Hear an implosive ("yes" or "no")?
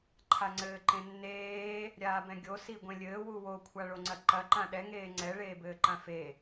yes